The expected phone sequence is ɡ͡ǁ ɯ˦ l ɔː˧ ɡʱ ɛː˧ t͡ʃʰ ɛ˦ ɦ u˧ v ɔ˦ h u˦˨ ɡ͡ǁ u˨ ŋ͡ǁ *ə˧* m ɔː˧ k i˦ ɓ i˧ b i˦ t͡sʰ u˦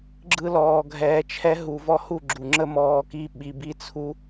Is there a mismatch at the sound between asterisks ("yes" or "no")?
yes